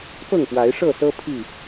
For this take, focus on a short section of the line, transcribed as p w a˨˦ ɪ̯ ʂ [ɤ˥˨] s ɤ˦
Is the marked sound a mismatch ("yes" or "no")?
no